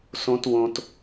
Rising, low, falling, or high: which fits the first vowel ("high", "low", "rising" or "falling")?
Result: high